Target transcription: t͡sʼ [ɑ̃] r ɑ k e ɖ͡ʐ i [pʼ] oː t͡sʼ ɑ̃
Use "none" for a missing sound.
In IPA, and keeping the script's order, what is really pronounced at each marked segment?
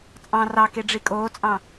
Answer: ɑ̃, kʼ

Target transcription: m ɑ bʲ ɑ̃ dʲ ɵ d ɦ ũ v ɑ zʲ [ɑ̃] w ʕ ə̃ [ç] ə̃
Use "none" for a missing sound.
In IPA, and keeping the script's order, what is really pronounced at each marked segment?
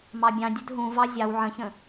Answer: ɑ, ç

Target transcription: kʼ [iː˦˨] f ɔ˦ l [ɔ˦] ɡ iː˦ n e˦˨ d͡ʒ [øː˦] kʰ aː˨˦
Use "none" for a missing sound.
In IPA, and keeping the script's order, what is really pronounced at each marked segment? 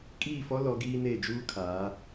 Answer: iː˦˨, ɔ˨˦, uː˦

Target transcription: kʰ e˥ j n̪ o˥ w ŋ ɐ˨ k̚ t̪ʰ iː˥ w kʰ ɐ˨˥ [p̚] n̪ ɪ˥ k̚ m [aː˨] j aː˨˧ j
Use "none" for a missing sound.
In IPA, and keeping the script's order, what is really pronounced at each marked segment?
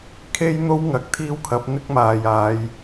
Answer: p̚, aː˨

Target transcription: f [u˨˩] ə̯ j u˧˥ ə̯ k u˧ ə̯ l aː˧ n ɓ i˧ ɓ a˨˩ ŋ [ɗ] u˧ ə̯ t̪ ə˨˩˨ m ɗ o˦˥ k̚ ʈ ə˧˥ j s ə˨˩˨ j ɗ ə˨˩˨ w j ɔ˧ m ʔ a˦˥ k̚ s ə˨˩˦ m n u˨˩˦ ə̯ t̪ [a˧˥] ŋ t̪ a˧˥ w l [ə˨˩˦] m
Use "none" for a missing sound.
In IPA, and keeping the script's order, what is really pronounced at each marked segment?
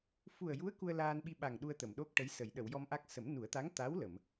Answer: u˨˩, ɗ, a˧˥, ə˨˩˨

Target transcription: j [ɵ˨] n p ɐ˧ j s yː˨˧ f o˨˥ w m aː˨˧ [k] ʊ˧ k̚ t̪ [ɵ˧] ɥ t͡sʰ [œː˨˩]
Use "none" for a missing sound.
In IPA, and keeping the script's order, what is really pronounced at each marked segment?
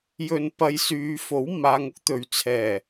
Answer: ɵ˧, ŋ, ɵ˨, ɛː˨˩

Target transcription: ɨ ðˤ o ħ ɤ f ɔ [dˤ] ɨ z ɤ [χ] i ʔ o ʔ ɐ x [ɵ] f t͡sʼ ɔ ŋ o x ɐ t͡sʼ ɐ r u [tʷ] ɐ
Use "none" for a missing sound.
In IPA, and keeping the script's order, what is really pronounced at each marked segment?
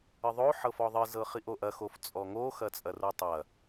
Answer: ðˤ, χ, o, tˤ

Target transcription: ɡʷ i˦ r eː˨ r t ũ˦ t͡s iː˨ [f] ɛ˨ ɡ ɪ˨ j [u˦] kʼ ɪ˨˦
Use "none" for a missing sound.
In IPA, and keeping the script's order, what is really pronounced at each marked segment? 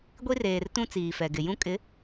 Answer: f, ũ˦

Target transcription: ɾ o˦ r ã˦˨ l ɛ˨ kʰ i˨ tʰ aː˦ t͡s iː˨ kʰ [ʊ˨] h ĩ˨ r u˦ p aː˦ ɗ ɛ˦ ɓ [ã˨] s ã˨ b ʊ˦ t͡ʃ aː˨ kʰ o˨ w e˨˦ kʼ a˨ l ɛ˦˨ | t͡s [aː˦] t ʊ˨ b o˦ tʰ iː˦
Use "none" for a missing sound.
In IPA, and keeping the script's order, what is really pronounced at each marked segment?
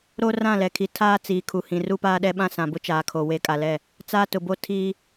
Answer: u˨, ã˦, aː˦

